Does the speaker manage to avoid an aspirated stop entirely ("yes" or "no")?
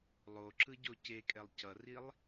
yes